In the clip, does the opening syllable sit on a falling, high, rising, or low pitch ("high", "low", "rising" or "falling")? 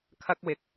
low